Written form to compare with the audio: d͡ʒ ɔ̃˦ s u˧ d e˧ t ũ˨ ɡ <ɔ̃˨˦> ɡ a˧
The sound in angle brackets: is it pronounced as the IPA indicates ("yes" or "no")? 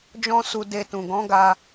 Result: yes